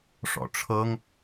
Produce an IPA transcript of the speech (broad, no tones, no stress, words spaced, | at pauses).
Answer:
ʂɔ̰ʈ͡ʂʰɤŋ